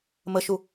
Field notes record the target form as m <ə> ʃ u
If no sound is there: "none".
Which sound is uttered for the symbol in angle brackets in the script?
ə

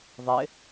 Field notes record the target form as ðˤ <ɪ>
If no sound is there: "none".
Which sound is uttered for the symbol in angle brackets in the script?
ɪ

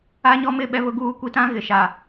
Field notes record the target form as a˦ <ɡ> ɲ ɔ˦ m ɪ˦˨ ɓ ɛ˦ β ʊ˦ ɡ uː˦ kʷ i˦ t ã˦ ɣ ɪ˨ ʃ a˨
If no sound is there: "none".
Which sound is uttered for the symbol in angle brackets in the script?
none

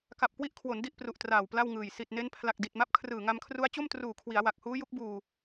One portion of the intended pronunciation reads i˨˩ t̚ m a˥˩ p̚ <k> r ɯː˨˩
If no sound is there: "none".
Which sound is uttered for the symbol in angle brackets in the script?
kʰ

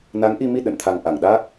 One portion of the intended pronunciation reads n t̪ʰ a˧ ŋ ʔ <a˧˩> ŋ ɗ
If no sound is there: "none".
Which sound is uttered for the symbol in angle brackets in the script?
a˧˩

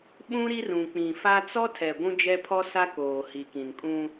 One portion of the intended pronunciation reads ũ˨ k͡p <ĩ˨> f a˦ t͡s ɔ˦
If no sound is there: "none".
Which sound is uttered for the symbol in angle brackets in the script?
ĩ˨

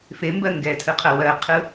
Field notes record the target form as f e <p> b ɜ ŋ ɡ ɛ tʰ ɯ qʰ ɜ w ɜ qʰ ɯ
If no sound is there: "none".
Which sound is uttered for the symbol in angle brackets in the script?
m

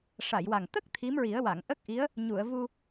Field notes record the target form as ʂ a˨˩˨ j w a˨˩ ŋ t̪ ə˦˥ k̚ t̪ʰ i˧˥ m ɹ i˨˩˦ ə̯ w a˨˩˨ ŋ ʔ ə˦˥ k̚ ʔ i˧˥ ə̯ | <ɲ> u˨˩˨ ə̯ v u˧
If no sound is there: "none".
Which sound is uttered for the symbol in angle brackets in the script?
ɲ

